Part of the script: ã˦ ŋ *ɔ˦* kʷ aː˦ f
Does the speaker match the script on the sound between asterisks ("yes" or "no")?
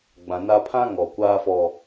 no